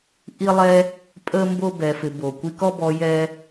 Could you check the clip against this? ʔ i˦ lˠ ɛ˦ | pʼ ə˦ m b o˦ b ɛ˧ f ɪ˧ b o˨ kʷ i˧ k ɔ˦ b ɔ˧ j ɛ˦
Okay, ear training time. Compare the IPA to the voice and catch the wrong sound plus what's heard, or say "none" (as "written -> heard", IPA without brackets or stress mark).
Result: none